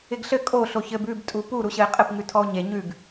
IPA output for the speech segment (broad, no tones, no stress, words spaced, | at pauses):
ɪɡɬɘ kʼo ɬoçɘb ʉbtʼu pu ɾuɕɘe̯qʼɘpŋʉ tʰɔo̯ɲe ɲʉɡ